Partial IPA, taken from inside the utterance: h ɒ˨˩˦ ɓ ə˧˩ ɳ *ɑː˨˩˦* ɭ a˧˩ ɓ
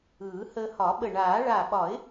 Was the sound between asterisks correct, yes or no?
no